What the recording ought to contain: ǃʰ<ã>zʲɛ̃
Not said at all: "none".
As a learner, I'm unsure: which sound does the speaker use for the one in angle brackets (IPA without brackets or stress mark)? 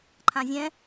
ã